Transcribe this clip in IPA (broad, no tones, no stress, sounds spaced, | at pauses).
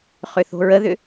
χ ʏ θ o̤ ɹ ə ð ʏ